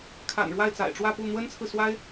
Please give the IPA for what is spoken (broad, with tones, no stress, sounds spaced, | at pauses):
kʰ a̰˨˩ n ɻ w a˥˩ ɪ̯ t͡s a̰˨˩ ɪ̯ ʈ͡ʂ w ä˥˧ p u˥˩ n̪ w ə˥ n t͡sʰ ɹ̩˨ s w a˥ ɪ̯